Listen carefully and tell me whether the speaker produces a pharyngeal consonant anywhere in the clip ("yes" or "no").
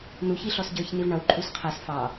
no